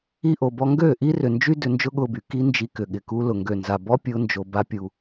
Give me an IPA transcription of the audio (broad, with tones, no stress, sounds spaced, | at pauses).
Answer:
i˧ ʔ o˨ b ɔ˧ ŋ ɡ øː˦˨ ʔ i˦ r ʏ˨ n d͡ʒ y˦ d ʏ˧ n d͡ʒ ʊ˦ ɠ ʊː˧ b y˨ k i˦ n d͡ʒ i˧ k ʏ˨ ɠ ɪ˨ k u˧ l ʊ˨ ŋ ɡ ø˨ n z a˨ b ɔ˦ pʲ ʊː˧ n d͡ʒ o˨ b a˦ pʲ u˧